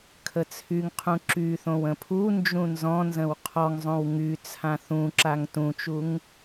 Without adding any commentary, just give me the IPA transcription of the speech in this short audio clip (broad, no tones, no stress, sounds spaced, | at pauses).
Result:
kʰ ə t͡sʰ y ŋ qʰ ũ ǁ y θ õ w ə̃ pʰ u n d͡ʒ ũ n z ɔ̃ n z ə̃ w qʰ ɔ ŋ zˤ õ w ŋ y t͡sʰ ã θ ũ ǁ a ŋ t ũ t͡ʃ u ŋ